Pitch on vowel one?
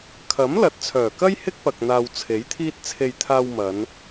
rising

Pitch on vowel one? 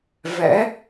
rising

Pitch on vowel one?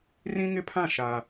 high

